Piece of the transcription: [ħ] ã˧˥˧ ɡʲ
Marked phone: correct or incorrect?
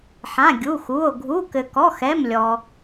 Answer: correct